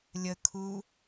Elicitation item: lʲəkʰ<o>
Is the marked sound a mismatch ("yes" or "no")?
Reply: yes